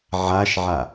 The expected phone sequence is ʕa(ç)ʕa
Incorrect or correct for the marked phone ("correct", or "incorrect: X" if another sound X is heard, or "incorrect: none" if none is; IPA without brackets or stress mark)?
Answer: incorrect: ʃ